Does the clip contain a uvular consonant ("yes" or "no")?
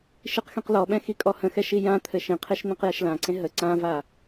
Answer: yes